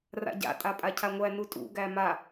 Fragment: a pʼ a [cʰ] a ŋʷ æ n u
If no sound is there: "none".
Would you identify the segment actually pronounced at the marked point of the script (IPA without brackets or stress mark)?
cʰ